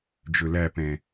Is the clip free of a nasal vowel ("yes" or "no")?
no